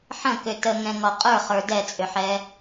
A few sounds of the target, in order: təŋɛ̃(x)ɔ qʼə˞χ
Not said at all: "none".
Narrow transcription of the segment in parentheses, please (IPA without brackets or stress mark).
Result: ŋ